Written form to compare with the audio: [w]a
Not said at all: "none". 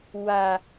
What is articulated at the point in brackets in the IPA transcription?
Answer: w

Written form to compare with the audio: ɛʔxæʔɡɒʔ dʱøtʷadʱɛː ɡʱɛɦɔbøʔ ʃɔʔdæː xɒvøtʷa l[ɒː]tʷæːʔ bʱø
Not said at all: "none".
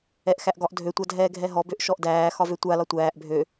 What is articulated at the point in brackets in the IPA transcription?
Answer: ɒ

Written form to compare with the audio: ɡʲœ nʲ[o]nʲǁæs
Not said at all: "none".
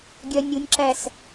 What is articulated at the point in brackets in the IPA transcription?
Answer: u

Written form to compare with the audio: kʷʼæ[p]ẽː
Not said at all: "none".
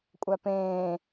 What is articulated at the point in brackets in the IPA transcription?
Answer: p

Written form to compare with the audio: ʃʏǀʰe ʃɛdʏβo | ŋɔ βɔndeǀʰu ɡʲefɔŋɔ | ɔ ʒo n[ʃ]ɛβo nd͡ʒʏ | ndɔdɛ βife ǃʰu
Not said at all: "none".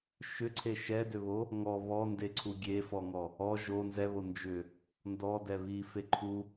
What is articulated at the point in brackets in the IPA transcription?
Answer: z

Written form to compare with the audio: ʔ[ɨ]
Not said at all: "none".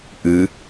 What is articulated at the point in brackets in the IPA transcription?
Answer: ɨ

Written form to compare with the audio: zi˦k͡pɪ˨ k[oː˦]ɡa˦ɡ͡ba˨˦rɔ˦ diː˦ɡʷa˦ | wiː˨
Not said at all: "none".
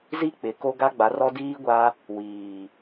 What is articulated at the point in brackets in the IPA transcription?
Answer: o˦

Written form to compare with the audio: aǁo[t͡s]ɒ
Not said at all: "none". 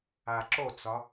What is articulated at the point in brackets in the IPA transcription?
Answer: t͡s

